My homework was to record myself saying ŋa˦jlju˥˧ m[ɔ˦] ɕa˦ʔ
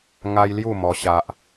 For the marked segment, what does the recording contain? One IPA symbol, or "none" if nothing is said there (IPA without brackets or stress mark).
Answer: ɔ˦